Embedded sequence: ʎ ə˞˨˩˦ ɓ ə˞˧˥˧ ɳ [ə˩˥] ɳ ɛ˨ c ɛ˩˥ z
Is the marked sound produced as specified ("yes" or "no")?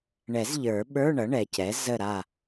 no